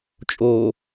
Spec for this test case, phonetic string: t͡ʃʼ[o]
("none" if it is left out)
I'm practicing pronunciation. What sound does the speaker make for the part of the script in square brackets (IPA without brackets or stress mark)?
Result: o